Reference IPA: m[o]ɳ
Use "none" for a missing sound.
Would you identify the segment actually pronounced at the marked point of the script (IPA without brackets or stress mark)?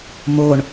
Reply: o